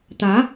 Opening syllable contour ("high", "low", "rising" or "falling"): rising